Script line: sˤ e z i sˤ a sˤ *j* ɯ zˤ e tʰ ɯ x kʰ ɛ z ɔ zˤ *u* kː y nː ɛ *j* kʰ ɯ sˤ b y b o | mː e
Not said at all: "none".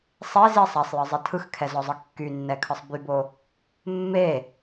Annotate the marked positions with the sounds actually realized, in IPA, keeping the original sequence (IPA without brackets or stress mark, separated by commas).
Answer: j, ɯ, none